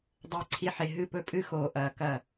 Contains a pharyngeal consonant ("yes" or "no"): yes